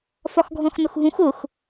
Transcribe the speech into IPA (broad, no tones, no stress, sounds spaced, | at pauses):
f ɒ x ɡʱ ɔ̃ x n ʊ x ɦ ũ x ʊ x